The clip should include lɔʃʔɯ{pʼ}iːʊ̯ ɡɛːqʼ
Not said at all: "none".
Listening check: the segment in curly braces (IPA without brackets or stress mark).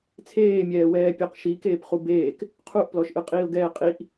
qʼ